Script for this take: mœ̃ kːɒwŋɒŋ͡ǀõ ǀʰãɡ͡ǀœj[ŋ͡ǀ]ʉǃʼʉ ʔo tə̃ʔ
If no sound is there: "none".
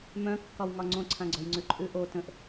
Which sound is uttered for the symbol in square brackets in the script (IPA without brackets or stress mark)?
ŋ͡ǀ